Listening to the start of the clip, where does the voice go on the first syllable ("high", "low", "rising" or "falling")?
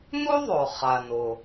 high